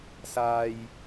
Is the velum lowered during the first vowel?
no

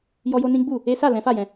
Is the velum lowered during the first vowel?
no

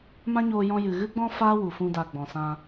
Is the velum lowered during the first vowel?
yes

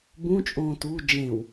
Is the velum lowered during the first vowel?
yes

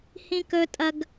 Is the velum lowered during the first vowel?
yes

